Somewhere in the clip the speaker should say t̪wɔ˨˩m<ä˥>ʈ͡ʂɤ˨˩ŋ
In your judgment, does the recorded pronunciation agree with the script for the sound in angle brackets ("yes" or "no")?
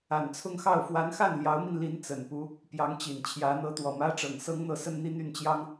yes